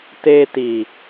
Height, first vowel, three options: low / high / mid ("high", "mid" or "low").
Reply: mid